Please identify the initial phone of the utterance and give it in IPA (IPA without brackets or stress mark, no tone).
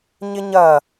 ɲ